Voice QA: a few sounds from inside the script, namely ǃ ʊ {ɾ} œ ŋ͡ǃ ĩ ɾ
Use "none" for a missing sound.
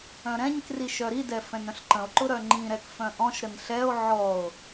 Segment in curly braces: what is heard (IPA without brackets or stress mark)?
ɾ